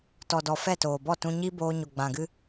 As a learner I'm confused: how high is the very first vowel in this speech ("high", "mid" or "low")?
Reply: mid